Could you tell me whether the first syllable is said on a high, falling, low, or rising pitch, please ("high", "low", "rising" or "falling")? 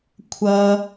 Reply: high